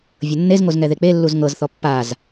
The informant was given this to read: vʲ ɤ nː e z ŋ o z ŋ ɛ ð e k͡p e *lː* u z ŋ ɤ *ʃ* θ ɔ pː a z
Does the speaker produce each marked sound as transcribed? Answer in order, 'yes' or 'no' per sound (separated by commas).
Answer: yes, no